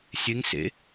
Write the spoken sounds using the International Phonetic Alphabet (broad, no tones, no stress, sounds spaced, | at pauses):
sʲ e ŋ s ḛ